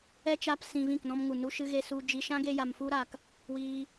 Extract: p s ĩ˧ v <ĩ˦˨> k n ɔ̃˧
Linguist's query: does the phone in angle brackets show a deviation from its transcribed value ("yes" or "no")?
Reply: no